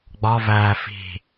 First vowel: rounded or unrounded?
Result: rounded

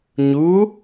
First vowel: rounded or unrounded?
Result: rounded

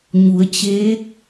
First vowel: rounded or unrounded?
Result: rounded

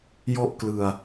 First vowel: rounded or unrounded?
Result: rounded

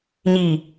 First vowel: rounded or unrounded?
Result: unrounded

